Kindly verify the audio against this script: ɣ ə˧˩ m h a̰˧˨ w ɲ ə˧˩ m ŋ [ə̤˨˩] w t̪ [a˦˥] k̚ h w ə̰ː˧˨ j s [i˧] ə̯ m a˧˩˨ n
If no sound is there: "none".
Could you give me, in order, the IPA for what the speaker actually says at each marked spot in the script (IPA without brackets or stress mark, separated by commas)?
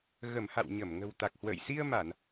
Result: ə̤˨˩, a˨˩, i˧